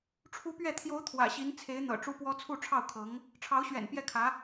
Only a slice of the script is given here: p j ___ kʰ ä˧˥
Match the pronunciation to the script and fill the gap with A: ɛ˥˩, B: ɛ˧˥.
A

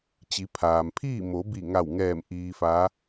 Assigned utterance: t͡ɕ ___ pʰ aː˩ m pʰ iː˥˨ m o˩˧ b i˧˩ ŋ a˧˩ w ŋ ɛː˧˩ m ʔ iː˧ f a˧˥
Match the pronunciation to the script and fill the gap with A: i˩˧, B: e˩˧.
A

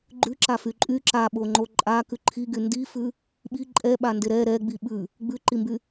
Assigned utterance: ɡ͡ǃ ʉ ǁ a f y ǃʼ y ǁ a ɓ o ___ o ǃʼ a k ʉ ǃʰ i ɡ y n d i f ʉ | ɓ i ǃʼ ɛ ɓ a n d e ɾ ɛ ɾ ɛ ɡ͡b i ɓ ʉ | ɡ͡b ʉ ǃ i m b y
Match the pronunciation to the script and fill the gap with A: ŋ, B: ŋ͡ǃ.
B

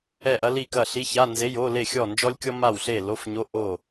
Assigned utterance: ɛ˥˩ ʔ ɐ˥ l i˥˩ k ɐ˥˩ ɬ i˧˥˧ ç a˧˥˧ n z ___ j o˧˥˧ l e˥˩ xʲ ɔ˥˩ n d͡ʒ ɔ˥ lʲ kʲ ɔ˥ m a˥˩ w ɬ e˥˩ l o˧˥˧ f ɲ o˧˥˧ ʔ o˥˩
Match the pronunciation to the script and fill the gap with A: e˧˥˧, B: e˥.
A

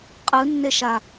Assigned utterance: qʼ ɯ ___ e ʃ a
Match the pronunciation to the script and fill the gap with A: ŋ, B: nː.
B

